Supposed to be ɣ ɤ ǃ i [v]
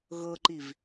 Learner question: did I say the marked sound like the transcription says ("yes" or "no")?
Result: yes